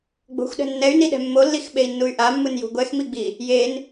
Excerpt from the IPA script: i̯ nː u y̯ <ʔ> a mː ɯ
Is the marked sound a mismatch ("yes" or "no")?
no